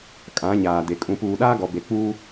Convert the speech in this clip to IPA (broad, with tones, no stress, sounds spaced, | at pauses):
kʼ ã˨˦ ɲ aː˨ d e˨ kʼ ũ˨ p uː˨ ɗ aː˦ ɡ ɔ˨ b e˨ k͡p uː˦